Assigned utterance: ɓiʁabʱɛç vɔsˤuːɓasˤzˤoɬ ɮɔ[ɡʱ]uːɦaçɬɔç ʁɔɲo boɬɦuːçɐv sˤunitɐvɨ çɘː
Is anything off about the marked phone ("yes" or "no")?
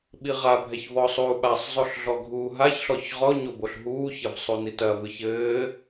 no